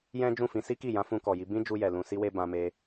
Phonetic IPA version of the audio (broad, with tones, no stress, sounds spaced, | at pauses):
j ɛ̃˦ d͡ʒ ũ˦˨ f ĩ˧ s i˦ k i˦˨ j ã˨˦ f ũ˧ k ɔ˨ j i˧ b ĩ˦ d͡ʒ u˧ j ɛ˨ l ũ˧ s i˦ w e˦ b ã˧ m e˧